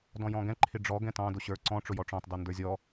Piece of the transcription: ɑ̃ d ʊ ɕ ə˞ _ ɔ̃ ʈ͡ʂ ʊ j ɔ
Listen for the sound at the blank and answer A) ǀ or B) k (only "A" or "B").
A